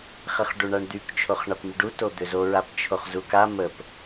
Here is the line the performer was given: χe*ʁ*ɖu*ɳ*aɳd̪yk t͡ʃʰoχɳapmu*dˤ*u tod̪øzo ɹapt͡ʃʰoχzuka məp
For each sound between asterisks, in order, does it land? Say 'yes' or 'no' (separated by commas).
no, yes, no